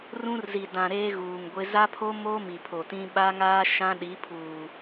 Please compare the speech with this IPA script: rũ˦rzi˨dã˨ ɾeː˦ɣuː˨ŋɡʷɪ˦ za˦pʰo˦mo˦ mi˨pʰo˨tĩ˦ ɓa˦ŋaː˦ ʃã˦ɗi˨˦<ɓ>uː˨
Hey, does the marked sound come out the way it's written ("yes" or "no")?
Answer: no